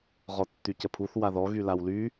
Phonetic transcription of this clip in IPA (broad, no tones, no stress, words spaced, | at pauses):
ʁɔtːycəpʰuθ waðɔ ɣylawly